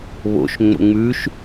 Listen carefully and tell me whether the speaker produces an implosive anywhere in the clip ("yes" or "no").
no